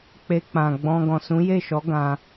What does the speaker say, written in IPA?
k͡p e˧ k͡p ã˨ ɡ͡b ɔ̃˧ ɡ ɔ̃˨ s ũ˨˦ j e˦˨ ʃ ɔ˨˦ ɡ ã˧

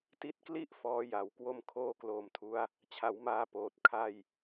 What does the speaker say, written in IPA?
t i˦˥ t̚ k l i˥˩ ʔ f ɔː˦˥ j a˨˩ w k w o˥˩ m kʰ oː˥˩ k l oː˧ m tʰ u˦˥ a̯ | t͡ɕʰ a˩˦ w m aː˧ p oː˨˩ t̚ kʰ a˥˩ j

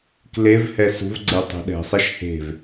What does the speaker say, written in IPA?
k l e v h ɛ s ṳ v ɡ͡ǀ e tˤ ṳ ɗ ɛ̤ sˤ ɛ ʃ h e̤ v

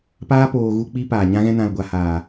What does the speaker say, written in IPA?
p aː˦ p oː˧ ɣ u˧ k͡p i˧ p aː˨ ɲ ã˧ ɣ ɛ̃˧ n ã˨ l ɡʷ a˧ h aː˨

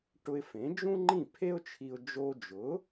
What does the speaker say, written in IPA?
ʈ ʊ˧ ɪ̯ f ẽ˩˥ d͡ʒ ũ˥ ŋ͡ǃ ĩ˥˩ pʰ e˥ ʊ̯ t͡ʃʰ i˧ ʊ̯ d͡ʒ o˧ d͡ʒ ʊ˩˥

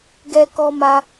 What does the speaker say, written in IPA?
ɡ ɛ˦ k ɔ˦ m a˦

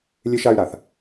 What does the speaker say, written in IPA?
lʲ e˧ ʃ a˧ y̯ ɾ a˨ θ

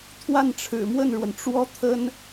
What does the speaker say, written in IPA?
t̪ʰ w a˥˩ n ʈ͡ʂʰ ɻ̩˨˩ m w ə˥˩ n ɻ w ə˩ n ʈ͡ʂ w ɔ˥ t̪ʰ ə˥ n

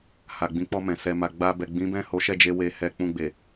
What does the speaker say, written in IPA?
h a˨ ɡ͡b ĩ˨˦ k͡p ɔ˧ m ɛ̃˨ s ɛ˨ m a˨ ɡ͡b a˧ b ɛ˨ ɡ͡b ĩ˨˦ b ɛ̃˦˨ h o˨˦ ʃ ɛ˦˨ d͡ʒ e˧ w e˨ h ɛ˧ k͡p ũ˧ ɡ͡b e˨

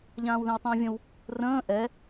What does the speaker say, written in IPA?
ʎ ãː w ð ɛ̃ w tˤ ə̃ː vʲ ə̃ w | r ə̃ː ʔ ɛ

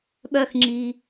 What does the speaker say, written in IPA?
ɓ œ˨ x ŋ͡ǁ i˩

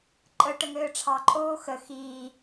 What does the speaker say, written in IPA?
ǃʼ ə ʈ ə ŋ ɘː ʈ͡ʂʰ ɑ ǃʼ oː x ə x iː

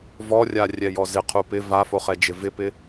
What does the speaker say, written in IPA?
v ɔ rʲ a rʲ ɛ j ɔ z ɪ qʰ u p ɪ v a f o χ ɛ d͡ʒ ɪ v ɪ p ɪ

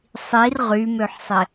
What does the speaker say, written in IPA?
sˤ i r ʁ y m ø ħ sˤ ɪ

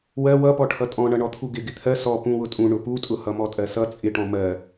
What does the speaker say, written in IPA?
w ɜ w ʌ p ɔ ʈʰ ʌ tʼ ɔ̃ ɳ ʌ ɳ ɔ t̪ʰ u ɡ ɪ ɡ ɪ t̪ʰ ɜ s ɔ p ũ w ʊ tʼ ũ ɳ ʊ p u tʼ ʊ h ʌ m ɔ tʼ ɜ s ʌ t͡sʼ ɪ ʈ ɔ̃ m ɜ

